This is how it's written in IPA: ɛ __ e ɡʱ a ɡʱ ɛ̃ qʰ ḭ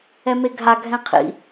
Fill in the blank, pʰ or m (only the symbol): m